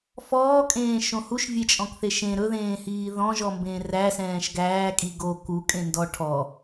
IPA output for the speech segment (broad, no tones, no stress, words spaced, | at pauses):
fɔːkʼẽːʃõ huʃvʲet͡ʃʼɔ̃kθe ʃẽ ɾɵðẽːhiː ðɔ̃ʒɔmbẽː ræsɛ̃ːʃ ɡæːkʼi ɡo kukʼẽndɔ ʈʰɔ